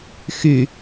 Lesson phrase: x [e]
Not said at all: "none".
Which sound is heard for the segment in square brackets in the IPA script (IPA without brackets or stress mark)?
y